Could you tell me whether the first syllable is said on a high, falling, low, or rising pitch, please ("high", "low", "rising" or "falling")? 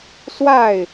falling